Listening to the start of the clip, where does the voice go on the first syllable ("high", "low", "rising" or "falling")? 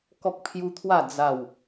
high